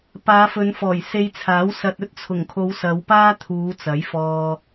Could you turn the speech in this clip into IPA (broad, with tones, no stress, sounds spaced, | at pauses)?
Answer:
p aː˨˧ f ɵ˨˧ n f ɔː˨˩ j s e˧ j t͡sʰ aː˨˥ w s ɐ˧ t̚ ɵ˥ t̚ t͡sʰ ʊ˨˩ ŋ kʰ o˨˧ w s ɐ˨˧ w p aː˥ t̪ʰ uː˨˧ t͡s ɐ˨˥ j f ɔː˧